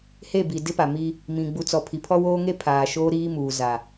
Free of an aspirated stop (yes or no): no